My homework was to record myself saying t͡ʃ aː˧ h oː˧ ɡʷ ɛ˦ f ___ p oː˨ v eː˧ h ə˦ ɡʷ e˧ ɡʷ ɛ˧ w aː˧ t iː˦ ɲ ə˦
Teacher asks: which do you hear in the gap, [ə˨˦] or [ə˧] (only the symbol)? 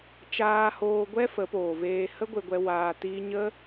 ə˨˦